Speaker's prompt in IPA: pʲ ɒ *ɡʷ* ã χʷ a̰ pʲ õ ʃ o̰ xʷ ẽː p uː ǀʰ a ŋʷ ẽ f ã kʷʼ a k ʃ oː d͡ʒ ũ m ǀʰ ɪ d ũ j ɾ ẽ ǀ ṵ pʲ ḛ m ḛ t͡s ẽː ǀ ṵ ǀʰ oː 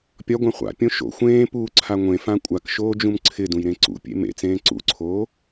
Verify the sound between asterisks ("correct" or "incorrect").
correct